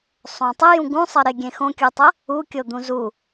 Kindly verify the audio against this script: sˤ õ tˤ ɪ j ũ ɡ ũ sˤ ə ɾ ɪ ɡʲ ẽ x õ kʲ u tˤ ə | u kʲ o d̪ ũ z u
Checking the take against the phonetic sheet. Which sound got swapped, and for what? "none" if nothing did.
none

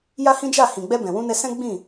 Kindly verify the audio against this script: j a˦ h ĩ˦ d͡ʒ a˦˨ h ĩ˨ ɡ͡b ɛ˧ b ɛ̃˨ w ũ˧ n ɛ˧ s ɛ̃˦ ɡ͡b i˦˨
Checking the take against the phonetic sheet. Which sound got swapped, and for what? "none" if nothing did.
i˦˨ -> ĩ˦˨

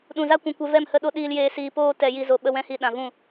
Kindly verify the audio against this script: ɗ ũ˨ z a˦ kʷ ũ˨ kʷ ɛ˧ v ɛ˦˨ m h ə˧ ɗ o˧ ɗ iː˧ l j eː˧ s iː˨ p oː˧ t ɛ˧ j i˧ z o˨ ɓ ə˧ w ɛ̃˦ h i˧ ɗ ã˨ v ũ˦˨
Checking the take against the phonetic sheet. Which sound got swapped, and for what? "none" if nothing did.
none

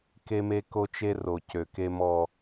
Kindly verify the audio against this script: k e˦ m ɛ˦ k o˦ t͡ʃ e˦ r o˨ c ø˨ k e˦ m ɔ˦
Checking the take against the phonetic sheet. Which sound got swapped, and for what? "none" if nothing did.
ɛ˦ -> e˦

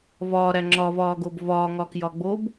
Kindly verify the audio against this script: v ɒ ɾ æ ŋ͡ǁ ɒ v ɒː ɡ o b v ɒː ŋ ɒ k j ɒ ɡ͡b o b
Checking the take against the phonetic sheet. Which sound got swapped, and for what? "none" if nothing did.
none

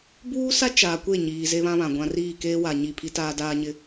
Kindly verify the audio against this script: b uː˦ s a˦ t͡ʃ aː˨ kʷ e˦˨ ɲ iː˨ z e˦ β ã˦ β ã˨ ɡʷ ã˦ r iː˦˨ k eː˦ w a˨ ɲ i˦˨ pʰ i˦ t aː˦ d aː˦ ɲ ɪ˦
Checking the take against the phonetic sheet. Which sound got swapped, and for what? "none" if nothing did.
none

